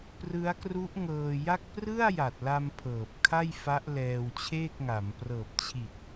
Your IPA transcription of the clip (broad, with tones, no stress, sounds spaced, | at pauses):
p r ɯ˦˥ a̯ k r u˦˥ ʔ ŋ ɤː˧ j a˥˩ k̚ p r ɯ˥˩ a̯ j a˨˩ t̚ l a˧ m pʰ ɤː˨˩ p̚ kʰ a˥˩ j f a˦˥ ʔ l ɛː˧ w t͡ɕʰ eː˥˩ k̚ ŋ a˩˦ m p r ɤː˨˩ p̚ t͡ɕʰ i˨˩ t̚